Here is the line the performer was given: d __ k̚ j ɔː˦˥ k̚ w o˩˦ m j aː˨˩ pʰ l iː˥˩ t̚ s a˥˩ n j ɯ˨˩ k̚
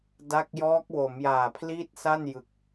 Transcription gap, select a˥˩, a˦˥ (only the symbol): a˦˥